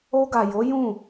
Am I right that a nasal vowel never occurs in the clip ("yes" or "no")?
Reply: no